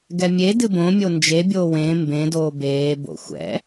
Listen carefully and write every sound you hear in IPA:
ɡ ɛ mʲ e d ɨ b õ mʲ o n d͡ʒ e bʲ oː w ẽ m b ẽ d oː b eː b o̰ xʷ ɛ̰

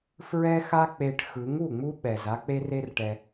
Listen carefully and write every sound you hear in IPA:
f ɹ ɛ˦ x a˦ k͡p e˧ ʈ x ɯ˨˦ ŋ u˦˨ ŋ͡m u˦ ɓ ɛ˨ z a˦ k͡p e˦ r e˦ r ʈ ɛ˧

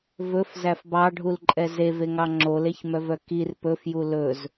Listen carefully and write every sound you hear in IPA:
v ɵ f z æ f b ɑ ɖʱ u l ǃʼ ɛ z e v e ŋ ɑ ŋ͡ǁ o l e ç m œ v œ k i r p ɵ f j u l ɵ z

